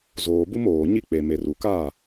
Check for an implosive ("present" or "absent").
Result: absent